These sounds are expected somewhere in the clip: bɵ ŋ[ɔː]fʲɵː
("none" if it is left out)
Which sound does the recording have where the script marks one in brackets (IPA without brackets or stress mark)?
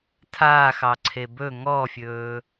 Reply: ɔː